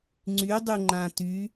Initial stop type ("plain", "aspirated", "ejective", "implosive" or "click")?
click